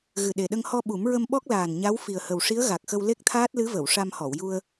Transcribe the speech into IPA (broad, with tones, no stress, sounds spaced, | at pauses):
ɣ ɨ˨˩ ɗ e˨˩ ɗ ə˧ ŋ h ɔ˧ ɓ u˨˩˦ m ɹ ə˧ m ɓ ɔ˦˥ k̚ l aː˨˩ n ɲ a˧˥ w f i˨˩ ə̯ h ə˨˩ w ʂ i˧˥ ə̯ ɣ a˨˩ k̚ x ə˧ w l e˦˥ k̚ t̪ʰ aː˦˥ t̚ l ɨ˧˥ v ə˨˩˨ w ʂ a˧ m h ɔ˨˩˨ w j u˧ ə̯